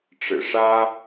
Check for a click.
absent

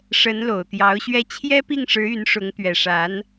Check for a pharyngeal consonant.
absent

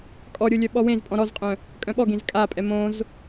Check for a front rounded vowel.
present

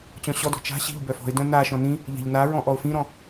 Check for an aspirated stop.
absent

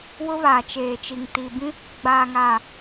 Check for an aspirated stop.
absent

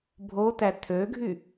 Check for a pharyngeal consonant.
absent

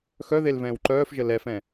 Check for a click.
present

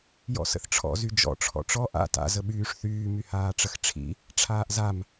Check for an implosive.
present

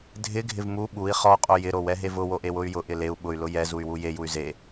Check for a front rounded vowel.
present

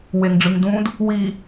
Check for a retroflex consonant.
present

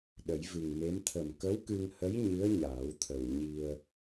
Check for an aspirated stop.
present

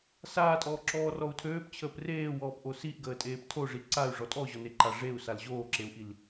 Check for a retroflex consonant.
present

